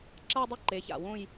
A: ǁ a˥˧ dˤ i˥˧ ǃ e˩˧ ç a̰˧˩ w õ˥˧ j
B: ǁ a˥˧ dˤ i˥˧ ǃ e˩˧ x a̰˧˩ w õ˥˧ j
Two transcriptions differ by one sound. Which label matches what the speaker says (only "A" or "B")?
A